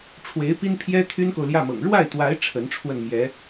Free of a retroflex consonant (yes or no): no